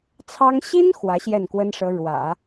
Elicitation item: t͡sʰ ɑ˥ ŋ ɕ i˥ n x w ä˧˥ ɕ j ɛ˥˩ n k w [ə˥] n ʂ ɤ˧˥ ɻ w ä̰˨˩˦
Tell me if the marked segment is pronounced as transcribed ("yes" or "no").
yes